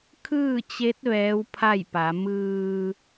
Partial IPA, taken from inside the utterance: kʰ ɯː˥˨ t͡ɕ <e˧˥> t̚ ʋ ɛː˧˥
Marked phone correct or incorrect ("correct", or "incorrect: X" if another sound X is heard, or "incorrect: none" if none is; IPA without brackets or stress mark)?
correct